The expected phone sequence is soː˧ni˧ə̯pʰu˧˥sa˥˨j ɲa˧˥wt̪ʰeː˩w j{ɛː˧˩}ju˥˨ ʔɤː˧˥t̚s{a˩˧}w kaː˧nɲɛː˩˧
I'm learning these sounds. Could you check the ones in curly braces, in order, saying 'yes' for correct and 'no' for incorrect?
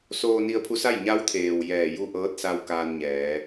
yes, no

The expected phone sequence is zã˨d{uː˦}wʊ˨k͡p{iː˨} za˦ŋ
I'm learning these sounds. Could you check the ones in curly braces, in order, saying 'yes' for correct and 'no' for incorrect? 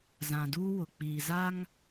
yes, yes

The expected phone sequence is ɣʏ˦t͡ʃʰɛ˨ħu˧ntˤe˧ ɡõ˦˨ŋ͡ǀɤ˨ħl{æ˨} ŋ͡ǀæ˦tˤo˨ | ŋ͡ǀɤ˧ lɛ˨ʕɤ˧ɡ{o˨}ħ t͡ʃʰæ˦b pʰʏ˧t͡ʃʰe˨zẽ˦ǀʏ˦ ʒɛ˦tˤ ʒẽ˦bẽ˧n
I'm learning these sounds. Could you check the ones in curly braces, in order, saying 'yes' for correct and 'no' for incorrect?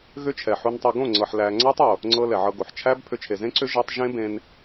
yes, yes

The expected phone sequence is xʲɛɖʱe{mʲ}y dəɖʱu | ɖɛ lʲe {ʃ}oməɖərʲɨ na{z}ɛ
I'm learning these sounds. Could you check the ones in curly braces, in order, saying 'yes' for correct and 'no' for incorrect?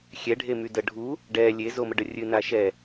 no, no, no

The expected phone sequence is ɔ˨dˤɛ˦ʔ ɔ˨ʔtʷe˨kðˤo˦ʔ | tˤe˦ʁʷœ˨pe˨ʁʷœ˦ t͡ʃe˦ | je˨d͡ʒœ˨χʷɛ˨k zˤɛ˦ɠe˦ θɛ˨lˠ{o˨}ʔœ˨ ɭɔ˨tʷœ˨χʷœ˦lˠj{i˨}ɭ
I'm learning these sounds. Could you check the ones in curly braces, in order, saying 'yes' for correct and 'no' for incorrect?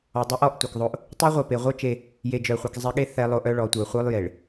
yes, no

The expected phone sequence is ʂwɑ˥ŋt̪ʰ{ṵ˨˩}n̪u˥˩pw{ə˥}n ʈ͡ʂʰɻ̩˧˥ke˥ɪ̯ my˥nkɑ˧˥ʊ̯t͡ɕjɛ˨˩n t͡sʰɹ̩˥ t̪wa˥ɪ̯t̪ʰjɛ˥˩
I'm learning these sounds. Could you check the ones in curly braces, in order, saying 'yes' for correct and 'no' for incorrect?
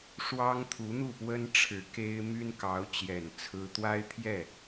no, yes

